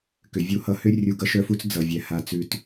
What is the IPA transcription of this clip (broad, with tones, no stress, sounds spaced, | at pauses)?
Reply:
k ʏ˨ vʲ u˧ h ʌ˧ h ʏ˦ rʲ u˧ ɡ ʌ˦ ʃ œ˦ f u˦ t͡s d͡z ʌ˨ vʲ ɛ˨ h a˧ t͡s ʉ˧ t